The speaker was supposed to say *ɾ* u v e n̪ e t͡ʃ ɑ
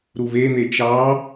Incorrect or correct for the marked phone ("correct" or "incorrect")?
correct